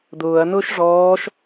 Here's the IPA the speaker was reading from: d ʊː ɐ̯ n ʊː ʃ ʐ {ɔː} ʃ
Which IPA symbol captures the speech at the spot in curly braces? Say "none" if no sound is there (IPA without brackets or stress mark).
ɔː